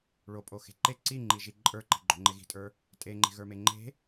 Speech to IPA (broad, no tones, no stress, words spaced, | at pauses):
ɭopʼo xe̤ǃe ǀiŋ͡ǃiʒi ǃʼə˞ǃi̤ ɡ͡ǃo̤ŋ͡ǃeɣi̤tʼə˞ | tʼeŋ͡ǃe̤ɣə˞me ŋ͡ǃe̤